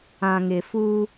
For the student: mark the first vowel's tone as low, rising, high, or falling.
low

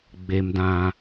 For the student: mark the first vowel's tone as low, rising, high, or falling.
high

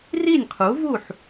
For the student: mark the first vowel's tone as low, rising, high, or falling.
falling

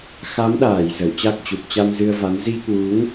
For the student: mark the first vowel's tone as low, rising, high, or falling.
rising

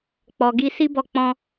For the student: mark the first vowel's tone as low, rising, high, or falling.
low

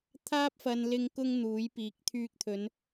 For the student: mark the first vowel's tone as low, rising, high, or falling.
high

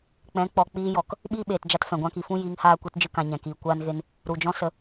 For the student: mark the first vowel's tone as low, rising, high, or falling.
rising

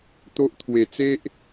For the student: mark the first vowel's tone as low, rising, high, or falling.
high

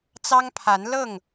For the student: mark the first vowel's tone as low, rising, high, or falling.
high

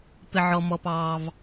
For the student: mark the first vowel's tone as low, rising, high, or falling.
low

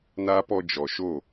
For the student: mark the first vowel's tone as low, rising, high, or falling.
high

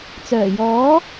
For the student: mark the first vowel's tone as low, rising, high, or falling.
low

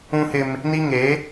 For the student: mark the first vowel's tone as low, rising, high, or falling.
high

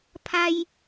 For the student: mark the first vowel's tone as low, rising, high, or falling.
high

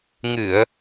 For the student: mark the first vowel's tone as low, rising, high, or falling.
low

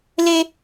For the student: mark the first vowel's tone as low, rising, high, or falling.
high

